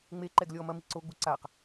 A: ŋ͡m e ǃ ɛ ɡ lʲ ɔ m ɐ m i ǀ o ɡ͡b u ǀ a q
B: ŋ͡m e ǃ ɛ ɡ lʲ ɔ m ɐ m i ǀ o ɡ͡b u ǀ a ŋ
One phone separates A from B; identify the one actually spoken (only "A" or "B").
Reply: A